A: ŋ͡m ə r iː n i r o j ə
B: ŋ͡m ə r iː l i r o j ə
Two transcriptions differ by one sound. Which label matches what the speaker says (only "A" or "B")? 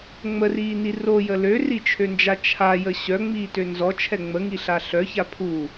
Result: A